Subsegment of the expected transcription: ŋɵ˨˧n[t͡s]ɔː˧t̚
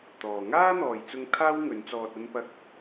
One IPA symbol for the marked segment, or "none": t͡s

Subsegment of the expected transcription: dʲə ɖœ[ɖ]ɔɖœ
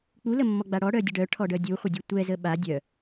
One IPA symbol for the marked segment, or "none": ʈʰ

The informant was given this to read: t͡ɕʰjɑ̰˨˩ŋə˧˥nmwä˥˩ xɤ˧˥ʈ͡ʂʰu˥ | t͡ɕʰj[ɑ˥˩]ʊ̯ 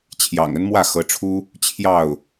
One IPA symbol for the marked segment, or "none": ɑ˥˩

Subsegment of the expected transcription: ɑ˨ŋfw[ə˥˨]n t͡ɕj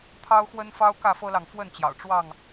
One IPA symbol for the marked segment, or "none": ə˥˨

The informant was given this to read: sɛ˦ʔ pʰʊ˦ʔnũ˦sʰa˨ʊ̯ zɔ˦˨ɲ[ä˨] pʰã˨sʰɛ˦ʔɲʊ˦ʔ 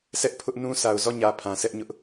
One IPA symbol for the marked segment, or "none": ä˨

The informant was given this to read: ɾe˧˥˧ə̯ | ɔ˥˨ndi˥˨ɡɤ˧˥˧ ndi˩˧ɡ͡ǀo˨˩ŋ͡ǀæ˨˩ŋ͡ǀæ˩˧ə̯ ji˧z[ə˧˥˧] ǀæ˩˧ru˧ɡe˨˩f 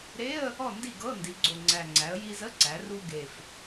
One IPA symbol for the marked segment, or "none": ə˧˥˧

